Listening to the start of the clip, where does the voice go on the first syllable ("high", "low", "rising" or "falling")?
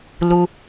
low